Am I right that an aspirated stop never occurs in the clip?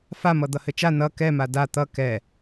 yes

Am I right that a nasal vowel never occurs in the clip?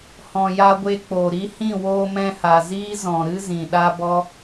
no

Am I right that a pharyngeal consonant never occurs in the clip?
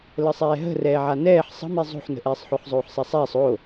no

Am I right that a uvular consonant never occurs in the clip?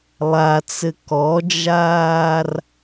yes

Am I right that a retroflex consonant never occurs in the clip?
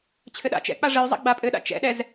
no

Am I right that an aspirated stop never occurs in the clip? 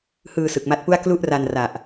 yes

